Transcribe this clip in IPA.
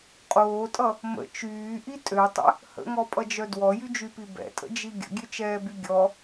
qʼ oː tʼ ʌ | m ə̰ t͡ʃ yː ʔ i tʼ ø tˤ ə̰ | h ə̰ ŋ ɔ pʼ ʌ d͡ʒ œ d w ɔ j y d͡ʒ y p i b ɛ̰ tʼ ə̰ d͡ʒ i ɡʲ ə̰ ɡʲ ø t͡ʃ ɛː b y ɡʲ ɔ

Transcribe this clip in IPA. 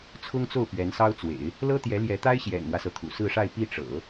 t͡sʰ ʊ˥ ŋ t͡s o˥˩ ʊ̯ p ɥ ɛ˧˥ n s ɑ˥ ʊ̯ t͡s w ḛ˨˩˦ ɪ̯ | l ɤ˥ t̪ j ɛ˧˥ l j ɛ˧˥ t̪ a˥ ɪ̯ ɕ j ɛ̰˨˩ n m w ä˦ s ɤ˩ t̪ʰ ṵ˨˩ s ɹ̩˥˧ ʂ a˥˧ ɪ̯ p i˥˩ ʈ͡ʂ ɤ̰˨˩˦

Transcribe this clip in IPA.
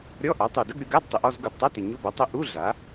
ɾʲ ɔ˧˥˧ ʔ a˩˥ tˤ u˨˩ d ə˧˥˧ ɡ ɾʲ o˩˧ ɡ a˧˥˧ d tˤ ɪ˩˧ ʔ ɔ˥˨ z ɡ u˨˩ d tˤ a˧˥˧ t ɪ˨˩ ɲ o˧˥˧ b ɔ˩˥ tˤ ɪ˧˥˧ ʔ u˧˥˧ ɮ a˩˥

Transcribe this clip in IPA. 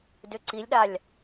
d ʏ ǀ i lʲ ɗ a lʲ

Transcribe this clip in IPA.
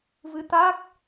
v ɨ˧ t̪ a˦˥ k̚

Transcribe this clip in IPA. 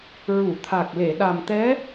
ɹ u˨˩˨ t̪ʰ a˨˩ k̚ l e˨˩˨ ɗ a˨˩ m t̪ ɛ˧˥

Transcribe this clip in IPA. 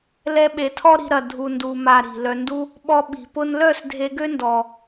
l ɛ˧ ɓ e˨ tʰ ɔ˦ ɾ i̤˧ ɾ ɐ˨ dʱ u˨ n d u˨ m a˧ ɾ i̤˨ l œ˧ n d u˦ | ɓ ɔ˧ ɓ i̤˨ p ʊ˦ n l œ˦˨ s dʱ e˧ ɡ ø˦ n d ɔ˨

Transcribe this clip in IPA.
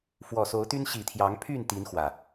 f w ɔ˨˩ s o˨˦ ʊ̯ t̪ y˦ n ɕ i˨˩ t̪ʰ j ɑ˨˦ ŋ pʰ y˥˨ n t̪ i˨˦ n x w ä˨˩

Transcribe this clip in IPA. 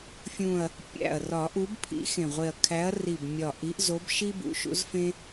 fʲ ũ˨˩ ɐ̯ | pʲ æ̰˨˩ ɐ̯ r ɒ˨˩˦ ʔ u˨˦ b pʰ ḭ˨˦ x ẽ˨˩ ʁʷ e˨˩ ɐ̯ kʰ æ˨˦ ɐ̯ r i˨˩ b mʲ ɒ˨˩ ʔ i˨˦ ʔ z o˨˦ b ʃ i˦ b ṵ˨˦ ʃ ṵ˨˦ z f ẽ˦

